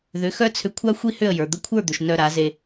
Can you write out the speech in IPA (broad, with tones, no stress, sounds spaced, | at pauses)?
ð ʏ˩˥ x œ˥ t͡sʰ ʏ˧ kʷʰ a˥ xʷ i˥ h ʏ˥˩ ə̯ j ə˞˩ d̪ ə˧ kʷʰ ə˞˥˩ d̪ ʏ˩ ʃ n œ˧ ɾ a˩˥ z e˧